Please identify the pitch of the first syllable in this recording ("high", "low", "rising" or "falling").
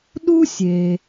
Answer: high